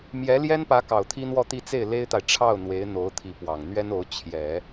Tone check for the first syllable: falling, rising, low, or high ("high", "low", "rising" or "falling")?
rising